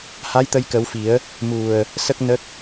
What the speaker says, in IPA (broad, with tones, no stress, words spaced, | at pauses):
ha˧˥jt̪ə˧jkə˨˩˦wfi˨˩˦ə̯ | mu˨˩ə̯ | sə˦˥k̚nə˦˥k̚